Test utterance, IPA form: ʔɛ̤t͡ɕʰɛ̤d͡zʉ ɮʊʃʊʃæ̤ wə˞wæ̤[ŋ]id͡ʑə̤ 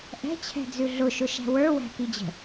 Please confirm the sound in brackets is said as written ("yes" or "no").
no